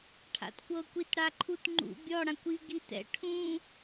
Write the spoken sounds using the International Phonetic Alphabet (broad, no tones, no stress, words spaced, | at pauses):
ʈʰa̰tkʷɤ kʷitɽaǃʰutŋ͡ǃṵ bʲɔ ɽãkʷi ɡitɛ̰ ʈʰũ